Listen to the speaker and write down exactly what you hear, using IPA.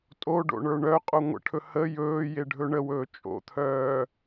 tʼoɖo̰ɳə˞ ɳœqʼo ŋʷə̰ʈʰɵ hə jɵːjeɖʱɵ ɳəwɵː t͡ʃʼo̰t̪ʰœː

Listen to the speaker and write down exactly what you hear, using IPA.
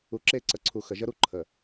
u˨ǁe˦˨ǀə˨ǀʰu˨ xə˨ʒə˦ɾu˦ ǃʰə˨

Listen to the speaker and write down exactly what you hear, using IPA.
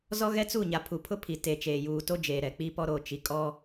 zɔ˦ɣɛ˦t͡su˦˨ɲa˨ pʰu˨pʰʊ˦ pʰi˨te˨t͡ʃeː˨ juː˨to˦ d͡ʒeː˨ɾɛ˨k͡pi˦pɔ˦ ɾo˦˨t͡ʃi˨kʼɔ˦

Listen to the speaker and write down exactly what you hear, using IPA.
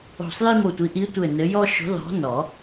o̤˧˩sˤji˦mo˧˩tʷi˨˦ ʔi˨˦tʷɘ˧˩ nɘ˨˦jɔ˦ ʃo̤˨˦lɔ̤˨˦ nɔ˨˩˦

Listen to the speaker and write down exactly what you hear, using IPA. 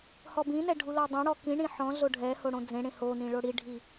hɔbĩnɛ ɖʱulɔdˤẽɽɔ kĩ ɳĩħɔ̃ ɮoɖʱɛ hoɽõd͡zẽ ɽẽhonĩ ɭoɽiɖʱi

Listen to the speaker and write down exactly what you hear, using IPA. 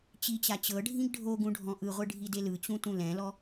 t͡ɕit͡ɕa t͡ɕɤɖʱĩɡ ɖʱoɡũɖʱɔ̃ ʔɯʁʷɯɖʱidel ɯt͡ɕũtũ lɛ̃lɔ

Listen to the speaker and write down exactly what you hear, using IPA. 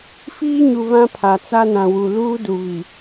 fiː˦ɲu˨ βã˦pʰa˨ t͡sa˦nã˨wu˨ luː˦du˨βi˨

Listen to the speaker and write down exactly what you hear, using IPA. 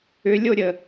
ʏlʲoɾʲə

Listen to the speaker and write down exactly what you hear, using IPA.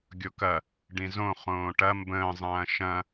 ɡʲokɐ | ɖĩzõ χõːʈɐ mbə̃ː zˤɐ̃ːʃɐ̃

